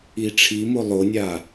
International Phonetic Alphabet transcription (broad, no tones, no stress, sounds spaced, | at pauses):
i ʈ͡ʂʰ i m o lˠ o nʲ a